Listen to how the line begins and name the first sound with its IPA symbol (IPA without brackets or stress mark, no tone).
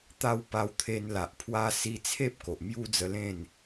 t̪